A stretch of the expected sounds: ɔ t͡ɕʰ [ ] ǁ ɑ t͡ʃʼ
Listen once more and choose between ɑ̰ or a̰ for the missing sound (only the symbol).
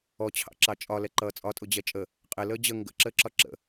ɑ̰